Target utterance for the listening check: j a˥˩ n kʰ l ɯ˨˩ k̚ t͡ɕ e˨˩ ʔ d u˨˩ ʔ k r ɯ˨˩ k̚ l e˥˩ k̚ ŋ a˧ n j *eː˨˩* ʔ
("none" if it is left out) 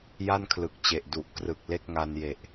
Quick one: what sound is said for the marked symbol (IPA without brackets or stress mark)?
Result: e˨˩